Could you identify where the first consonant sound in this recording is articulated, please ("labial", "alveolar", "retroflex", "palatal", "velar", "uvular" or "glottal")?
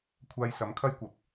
velar